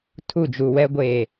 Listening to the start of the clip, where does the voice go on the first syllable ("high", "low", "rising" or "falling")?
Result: falling